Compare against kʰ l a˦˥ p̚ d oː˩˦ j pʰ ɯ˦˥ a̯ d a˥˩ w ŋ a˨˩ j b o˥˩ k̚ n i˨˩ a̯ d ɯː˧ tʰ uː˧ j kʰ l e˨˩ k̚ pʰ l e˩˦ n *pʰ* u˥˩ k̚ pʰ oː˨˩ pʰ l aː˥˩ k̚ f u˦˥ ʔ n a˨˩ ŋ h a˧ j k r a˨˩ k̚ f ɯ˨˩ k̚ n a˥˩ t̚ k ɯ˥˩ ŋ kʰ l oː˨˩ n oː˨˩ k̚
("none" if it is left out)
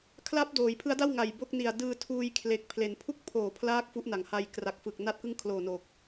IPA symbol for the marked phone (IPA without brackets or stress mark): pʰ